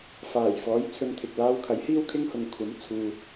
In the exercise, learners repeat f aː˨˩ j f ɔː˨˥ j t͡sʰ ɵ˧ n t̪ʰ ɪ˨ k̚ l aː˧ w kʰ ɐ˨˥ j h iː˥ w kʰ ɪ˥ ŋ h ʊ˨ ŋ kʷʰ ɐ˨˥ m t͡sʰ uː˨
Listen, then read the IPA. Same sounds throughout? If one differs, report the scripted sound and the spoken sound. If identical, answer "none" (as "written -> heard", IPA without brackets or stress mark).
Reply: none